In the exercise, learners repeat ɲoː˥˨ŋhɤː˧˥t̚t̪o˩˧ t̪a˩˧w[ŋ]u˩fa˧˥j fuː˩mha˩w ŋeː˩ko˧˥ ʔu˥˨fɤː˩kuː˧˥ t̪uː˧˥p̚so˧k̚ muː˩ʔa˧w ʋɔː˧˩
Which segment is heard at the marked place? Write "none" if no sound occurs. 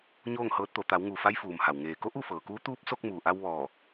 ŋ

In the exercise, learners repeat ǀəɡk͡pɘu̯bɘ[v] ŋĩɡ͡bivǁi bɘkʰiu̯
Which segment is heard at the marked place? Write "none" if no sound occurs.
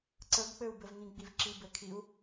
v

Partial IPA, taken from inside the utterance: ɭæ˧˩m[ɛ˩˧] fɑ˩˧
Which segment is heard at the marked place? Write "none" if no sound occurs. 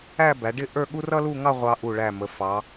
ə˩˧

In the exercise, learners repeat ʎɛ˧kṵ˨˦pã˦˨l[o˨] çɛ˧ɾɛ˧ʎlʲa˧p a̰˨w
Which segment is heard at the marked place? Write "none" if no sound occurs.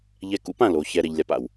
o˨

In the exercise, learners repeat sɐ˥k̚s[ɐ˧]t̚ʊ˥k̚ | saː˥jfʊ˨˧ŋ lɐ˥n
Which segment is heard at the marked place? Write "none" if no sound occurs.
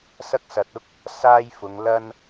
ɐ˨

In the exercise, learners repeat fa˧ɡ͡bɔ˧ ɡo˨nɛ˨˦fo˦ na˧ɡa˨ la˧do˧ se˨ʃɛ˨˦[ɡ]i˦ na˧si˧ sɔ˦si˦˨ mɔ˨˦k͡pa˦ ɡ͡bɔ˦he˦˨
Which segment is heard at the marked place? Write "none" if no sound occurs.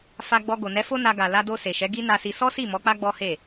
ɡ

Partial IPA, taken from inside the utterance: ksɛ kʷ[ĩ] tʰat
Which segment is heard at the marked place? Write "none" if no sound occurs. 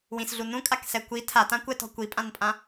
i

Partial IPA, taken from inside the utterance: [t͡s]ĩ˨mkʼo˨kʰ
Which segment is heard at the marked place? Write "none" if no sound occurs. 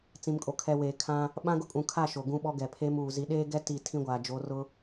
t͡s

